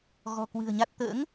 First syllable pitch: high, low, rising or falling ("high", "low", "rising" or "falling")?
low